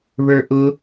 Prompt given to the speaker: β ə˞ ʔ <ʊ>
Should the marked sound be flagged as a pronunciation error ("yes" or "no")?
no